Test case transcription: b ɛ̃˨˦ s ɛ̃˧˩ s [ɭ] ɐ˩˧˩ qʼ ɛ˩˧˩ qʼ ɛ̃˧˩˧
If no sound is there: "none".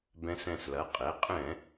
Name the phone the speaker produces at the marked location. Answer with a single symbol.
l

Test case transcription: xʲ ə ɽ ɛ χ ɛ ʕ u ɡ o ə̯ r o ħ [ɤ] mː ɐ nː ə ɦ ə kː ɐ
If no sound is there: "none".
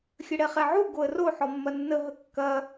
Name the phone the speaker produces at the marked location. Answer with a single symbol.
ɔ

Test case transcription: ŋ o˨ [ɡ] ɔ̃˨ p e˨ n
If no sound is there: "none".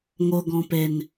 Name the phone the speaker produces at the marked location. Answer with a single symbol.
ɡ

